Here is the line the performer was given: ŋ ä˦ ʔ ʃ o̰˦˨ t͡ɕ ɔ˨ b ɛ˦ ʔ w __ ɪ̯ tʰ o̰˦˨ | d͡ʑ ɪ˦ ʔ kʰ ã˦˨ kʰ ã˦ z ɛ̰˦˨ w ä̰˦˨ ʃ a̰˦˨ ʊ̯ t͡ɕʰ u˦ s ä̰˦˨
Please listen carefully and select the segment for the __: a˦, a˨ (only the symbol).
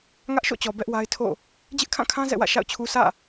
a˦